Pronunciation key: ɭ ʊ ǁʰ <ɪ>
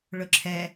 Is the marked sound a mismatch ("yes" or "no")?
yes